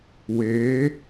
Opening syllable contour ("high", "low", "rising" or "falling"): rising